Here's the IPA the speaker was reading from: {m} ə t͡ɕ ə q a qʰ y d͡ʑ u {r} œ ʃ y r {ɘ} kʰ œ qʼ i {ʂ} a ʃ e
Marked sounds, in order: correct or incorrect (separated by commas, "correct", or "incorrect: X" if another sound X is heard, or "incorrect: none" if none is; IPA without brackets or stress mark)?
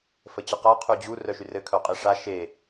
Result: incorrect: f, correct, correct, correct